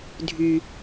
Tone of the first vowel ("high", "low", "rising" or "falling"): low